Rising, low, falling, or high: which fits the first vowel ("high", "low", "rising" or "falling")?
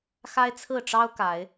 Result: high